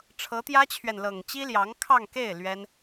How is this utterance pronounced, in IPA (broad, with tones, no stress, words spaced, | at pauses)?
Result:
ʈ͡ʂʰɤ˧˥t̪jä˥t͡ɕʰɥɛ˨n lɤ˨˩ŋ t͡ɕi˥ljɑ˧˥ŋkʰɑ˥˧ŋke˥˩ɪ̯ lɥɛ˥n